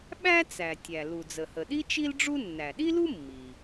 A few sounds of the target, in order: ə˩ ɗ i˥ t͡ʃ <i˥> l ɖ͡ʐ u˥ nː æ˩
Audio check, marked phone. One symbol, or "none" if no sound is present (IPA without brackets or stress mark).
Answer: i˥